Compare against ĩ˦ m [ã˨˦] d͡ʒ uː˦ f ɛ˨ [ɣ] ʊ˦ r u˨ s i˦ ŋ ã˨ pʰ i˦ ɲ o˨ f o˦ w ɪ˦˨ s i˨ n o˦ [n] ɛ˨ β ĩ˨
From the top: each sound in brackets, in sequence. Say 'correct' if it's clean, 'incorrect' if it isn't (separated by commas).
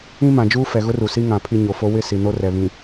incorrect, correct, incorrect